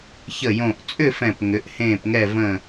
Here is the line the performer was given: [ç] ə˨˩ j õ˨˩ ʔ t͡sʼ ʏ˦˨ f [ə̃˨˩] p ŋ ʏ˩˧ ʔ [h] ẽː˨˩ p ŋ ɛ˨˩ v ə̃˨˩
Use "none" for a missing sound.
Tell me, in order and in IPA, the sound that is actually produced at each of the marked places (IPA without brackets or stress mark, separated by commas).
ç, ɛ̃˨˩, h